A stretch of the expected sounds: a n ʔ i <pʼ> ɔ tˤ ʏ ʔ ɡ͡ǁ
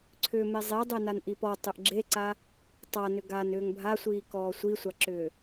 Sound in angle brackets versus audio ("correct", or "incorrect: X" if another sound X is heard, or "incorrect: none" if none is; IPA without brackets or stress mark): incorrect: p